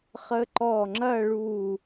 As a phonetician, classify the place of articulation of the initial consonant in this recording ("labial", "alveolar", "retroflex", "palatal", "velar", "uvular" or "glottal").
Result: uvular